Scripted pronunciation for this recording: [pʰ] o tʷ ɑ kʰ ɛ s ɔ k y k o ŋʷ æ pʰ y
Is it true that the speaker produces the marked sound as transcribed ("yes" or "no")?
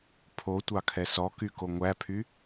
yes